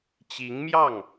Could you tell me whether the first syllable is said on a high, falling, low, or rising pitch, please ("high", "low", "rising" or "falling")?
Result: rising